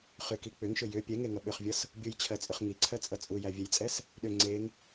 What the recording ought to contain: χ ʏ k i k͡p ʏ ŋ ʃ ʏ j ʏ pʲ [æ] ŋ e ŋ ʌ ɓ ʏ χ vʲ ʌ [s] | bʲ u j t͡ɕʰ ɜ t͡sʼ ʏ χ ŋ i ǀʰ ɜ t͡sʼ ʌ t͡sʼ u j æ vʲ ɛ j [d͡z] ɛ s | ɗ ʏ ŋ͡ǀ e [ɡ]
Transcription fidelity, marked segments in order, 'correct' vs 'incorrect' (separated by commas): incorrect, correct, incorrect, incorrect